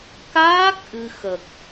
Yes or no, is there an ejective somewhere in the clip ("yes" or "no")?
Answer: no